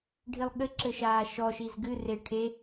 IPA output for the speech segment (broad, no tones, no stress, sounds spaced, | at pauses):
ɖʱ i lˠ ɠ ɘ ǁ ɘ ʃ aː ʃ ɔ ʃ i z ɡ ɨ r e ʈʰ e